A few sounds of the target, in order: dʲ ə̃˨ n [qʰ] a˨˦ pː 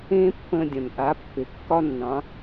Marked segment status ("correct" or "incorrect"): incorrect